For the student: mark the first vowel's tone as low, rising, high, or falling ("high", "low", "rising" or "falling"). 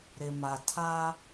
low